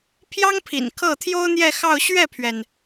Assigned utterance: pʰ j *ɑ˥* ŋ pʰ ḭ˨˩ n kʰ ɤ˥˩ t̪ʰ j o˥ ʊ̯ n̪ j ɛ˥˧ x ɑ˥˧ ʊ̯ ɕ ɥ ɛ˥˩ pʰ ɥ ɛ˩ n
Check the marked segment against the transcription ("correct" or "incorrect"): correct